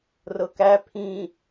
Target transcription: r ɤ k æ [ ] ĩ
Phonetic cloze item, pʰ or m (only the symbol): pʰ